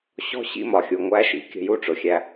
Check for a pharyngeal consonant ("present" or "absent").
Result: absent